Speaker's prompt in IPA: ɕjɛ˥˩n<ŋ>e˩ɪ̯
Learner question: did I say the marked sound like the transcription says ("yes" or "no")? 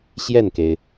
no